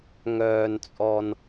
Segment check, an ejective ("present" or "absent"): present